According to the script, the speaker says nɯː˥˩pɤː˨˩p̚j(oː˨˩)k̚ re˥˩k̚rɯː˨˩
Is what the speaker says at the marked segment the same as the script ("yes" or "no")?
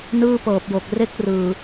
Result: no